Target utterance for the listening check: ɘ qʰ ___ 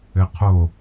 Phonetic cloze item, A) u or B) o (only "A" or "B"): B